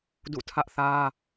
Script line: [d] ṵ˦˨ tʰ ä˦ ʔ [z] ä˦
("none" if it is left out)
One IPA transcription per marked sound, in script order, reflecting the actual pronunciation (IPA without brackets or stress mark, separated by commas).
d, θ